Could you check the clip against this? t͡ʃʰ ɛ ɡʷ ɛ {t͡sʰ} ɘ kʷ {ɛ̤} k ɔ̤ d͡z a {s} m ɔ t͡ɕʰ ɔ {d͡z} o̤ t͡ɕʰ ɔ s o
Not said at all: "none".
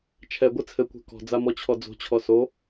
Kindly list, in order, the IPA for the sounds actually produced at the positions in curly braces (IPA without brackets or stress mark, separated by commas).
t͡sʰ, ɛ̤, none, d͡z